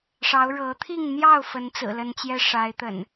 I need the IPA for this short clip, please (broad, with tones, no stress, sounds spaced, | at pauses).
ʂ ɑ˨˦ ʊ̯ ɻ ɤ˨˦ t̪ʰ i˥˨ ŋ n̪ j ɑ˥˨ ʊ̯ f ə˨˦ n t͡s ɹ̩˨˩ l ə˨˦ n t͡ɕ j ɛ˦ ʂ a˨˦ ɪ̯ t̪ ə̰˨˩ n